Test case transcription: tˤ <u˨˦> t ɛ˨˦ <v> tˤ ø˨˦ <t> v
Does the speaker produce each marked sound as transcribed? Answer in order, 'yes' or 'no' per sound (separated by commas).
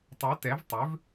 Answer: yes, yes, no